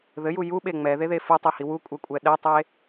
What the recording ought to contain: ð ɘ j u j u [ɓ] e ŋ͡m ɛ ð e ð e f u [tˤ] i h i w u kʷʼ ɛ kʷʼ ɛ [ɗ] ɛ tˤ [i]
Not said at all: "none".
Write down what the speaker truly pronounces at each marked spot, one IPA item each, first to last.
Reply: ɓ, tˤ, ɗ, e

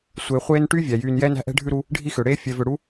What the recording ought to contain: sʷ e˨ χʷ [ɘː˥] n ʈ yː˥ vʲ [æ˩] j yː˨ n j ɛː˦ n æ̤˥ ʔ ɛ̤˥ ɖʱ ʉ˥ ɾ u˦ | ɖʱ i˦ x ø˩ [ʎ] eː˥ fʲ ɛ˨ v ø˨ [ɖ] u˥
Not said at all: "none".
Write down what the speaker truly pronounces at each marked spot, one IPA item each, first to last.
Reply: eː˥, æ˩, ɽ, ɽ

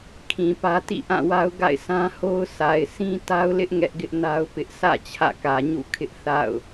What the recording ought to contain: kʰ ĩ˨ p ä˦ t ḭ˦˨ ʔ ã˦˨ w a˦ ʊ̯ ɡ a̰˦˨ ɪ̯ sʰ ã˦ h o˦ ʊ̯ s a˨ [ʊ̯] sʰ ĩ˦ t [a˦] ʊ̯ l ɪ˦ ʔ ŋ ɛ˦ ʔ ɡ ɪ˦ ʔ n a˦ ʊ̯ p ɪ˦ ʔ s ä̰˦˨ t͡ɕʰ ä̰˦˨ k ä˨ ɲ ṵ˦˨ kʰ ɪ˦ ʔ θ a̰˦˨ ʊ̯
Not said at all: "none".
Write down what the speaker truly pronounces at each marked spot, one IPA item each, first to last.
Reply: ɪ̯, a˦

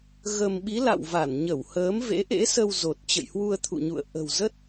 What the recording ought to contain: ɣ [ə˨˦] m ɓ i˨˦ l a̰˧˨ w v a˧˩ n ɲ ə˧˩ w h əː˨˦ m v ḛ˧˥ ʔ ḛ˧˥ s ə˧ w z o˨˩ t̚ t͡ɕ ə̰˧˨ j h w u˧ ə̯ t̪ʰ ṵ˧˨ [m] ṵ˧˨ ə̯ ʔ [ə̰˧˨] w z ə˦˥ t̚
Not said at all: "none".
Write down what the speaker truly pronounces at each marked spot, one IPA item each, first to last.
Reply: ə˧, ɲ, ə̤˨˩

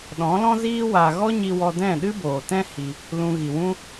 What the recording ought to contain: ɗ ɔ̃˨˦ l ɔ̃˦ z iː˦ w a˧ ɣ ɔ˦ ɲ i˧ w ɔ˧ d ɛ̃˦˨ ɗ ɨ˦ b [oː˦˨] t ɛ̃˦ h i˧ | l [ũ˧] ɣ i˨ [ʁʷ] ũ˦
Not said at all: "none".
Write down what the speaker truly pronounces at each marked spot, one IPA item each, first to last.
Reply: oː˨, ũ˧, w

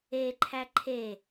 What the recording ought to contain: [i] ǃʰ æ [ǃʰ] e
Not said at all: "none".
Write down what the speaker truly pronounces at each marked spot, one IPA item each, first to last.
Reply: e, ǃʰ

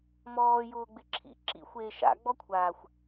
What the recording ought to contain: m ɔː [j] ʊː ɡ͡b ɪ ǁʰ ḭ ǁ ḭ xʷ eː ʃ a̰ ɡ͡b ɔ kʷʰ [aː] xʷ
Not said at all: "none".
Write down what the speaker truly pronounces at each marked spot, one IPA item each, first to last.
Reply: j, aː

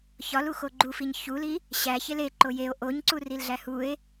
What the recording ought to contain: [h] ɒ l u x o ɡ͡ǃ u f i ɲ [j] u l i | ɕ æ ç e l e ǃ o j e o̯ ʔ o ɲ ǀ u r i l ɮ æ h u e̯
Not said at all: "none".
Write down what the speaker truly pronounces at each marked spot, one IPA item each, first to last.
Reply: ç, ç

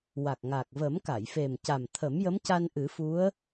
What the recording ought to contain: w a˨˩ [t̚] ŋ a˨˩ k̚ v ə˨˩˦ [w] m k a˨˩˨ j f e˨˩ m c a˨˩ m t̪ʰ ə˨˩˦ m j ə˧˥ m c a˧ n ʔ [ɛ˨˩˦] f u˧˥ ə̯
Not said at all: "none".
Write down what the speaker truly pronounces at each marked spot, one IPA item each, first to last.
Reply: k̚, none, ɨ˨˩˦

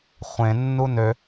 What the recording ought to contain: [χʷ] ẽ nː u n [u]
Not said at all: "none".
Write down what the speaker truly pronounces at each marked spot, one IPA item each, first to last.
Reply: χʷ, ø

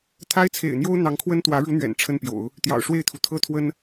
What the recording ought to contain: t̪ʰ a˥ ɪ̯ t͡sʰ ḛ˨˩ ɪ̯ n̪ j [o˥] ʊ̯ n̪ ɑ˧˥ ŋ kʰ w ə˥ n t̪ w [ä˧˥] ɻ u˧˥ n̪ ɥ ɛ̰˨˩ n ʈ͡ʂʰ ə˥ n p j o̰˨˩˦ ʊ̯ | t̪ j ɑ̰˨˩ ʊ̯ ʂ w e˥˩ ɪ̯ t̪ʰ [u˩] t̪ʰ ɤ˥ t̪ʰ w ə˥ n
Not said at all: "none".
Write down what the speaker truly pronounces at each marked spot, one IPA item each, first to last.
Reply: o˥, ä˧˥, u˩

